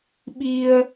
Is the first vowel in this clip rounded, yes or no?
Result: no